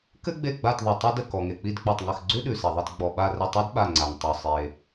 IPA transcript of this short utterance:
k ɘ˥ ɡ͡b e˦˨ ɡ͡b a˦˨ t ðˤ ɨ˨ tˤ i˥ d ə˦˨ k ɔ˨ ŋ e˨ k͡p i˦˨ d k͡p ɔ˦˨ tˤ ŋ ɘ˦˨ x ɡ͡ǀ ʉ˥ ɗ ʉ˨ s e˨ ðˤ ɘ˦˨ t ɡ͡b ɔ˨ ɓ a˦˨ r ə˦˨ tˤ e˥ d ɓ a˦˨ ŋ͡ǀ a˨ ŋ tˤ ʉ˨ sˤ e˨

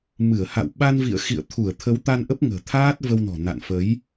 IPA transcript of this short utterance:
m ɨ˧˩ ə̯ h a̰˧˨ w ɓ a˧ n v ḭ˧˨ ə̯ x ḭ˧˨ ə̯ t̪ʰ u˧˩ ə̯ t̪ʰ ə˨˦ w t̪ a˧ n ʔ ə˦˥ p̚ ŋ ə̤ː˨˩ t̪ʰ aː˦˥ t̚ v ə˧ w n ɔ̤˨˩ n a̰˧˨ n f ə˨˦ j

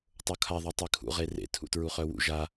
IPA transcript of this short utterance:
tˤ o kʰ a ðˤ ɛ tˤ ɛ kʰ ṵ ʁ e r ḛ tʰ ṵ t ɹ u χ œ w ṵ ʒ a

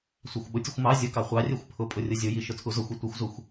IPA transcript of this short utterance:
sʷ ɑ xʷ ɓ ʊ tʲ ʊ xʷ m ɑ zʲ ʊ k ɑ χʷ ɑ rʲ ɛ xʷ pʰ ʊ pʼ ʊ rʲ ʊ zʲ ʊ j i ʃ ʊ tʰ u z ʊ xʷ i tʷ i xʷ z u xʷ

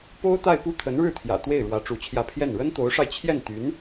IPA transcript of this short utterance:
p o˥ ʊ̯ t̪ a˥˧ ɪ̯ p u˥˩ t̪ʰ ə˧˥ n ɻ ɻ̩˥˩ t̪ʰ j ä̰˨˩ t̪ w e˥˩ ɪ̯ ɻ w ä˧˥ ʈ͡ʂ u˧˥ t͡ɕʰ j ä˥˧ pʰ j ɛ˥˩ n ɻ ə˥ n t̪ o˧˥ ʊ̯ ʂ a˧ ɪ̯ t͡ɕʰ j ɛ˥˩ n t̪ y˧˥ n

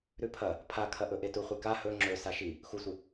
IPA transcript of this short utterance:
ɾ ʉ pʰ ɐ | pʰ a kʰ ɐ ʔ ɵ ʔ e t u χʷ e k a h ɵ ŋ͡ǁ ɵ s a ʃ i | x u sʷ ɨ

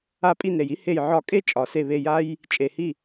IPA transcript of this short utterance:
a˦˨ pʼ i˦˨ n ɾ e˨ j i˥ h e˦˨ j ʕ ɒ˦˨ kʼ e˥ t͡ʃʼ ɒ˨ s e˦˨ β e˦˨ j a˥ j | t͡ʃʼ e˨ h i˦˨

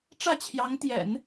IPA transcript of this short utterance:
ʈ͡ʂ ä˥˩ t͡ɕʰ j ɑ˧˥ ŋ t̪ j ɛ̰˨˩˦ n

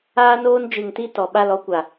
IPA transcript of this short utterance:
aː˦ n oː˦ n d͡ʒ ɨ˨ ŋ t i˧ t ɔ˨ ɓ a˦˨ l ɔ˦ kʷ a˨

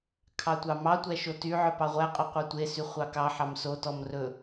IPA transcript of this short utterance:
kʰ ɑ tʷ ɑ m ɑ tʷ æ ʃ o t y ʕ œ p ɑ ʁʷ æ qʼ œ qʷ ɑ tʷ e s y χʷ ɑ k ɑ ħ ɑ m s o t ɔ m r ɵ

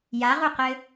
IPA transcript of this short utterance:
j a ʁ u q ɘ

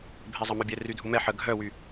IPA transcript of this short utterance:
bʱ ɛ zˤ ɐ m œ bʲ ɛ r y dʱ u m ɛ ħ ə ɡʱ œ w y

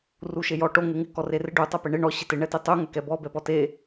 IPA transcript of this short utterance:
r u ʃ e j ɔ ʈ o ŋ e ŋ ɪ k ɔ r e r ɪ ɖ u tˤ ɛ p e ɳ ɪ ɳ ɔ ɕ ɪ t ɪ ɳ ɛ t e tˤ u ŋ ɛ k ɛ b ɔ b ɛ p ɔ t e

